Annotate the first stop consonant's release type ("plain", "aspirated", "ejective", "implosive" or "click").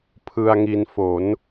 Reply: aspirated